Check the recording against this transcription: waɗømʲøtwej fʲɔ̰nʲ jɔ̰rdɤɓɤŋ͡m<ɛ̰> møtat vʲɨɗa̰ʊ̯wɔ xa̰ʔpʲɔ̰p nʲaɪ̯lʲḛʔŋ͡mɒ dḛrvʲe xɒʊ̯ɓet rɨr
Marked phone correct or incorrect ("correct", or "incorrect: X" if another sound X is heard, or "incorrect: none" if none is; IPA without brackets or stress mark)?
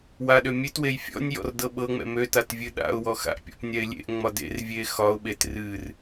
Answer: correct